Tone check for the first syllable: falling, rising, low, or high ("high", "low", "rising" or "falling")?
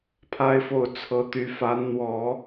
high